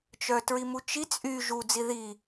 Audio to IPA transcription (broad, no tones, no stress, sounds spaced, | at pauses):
t͡ʃ œ t ɹ i m u t͡ʃ i t͡sʼ y ʒ u d͡z i ð i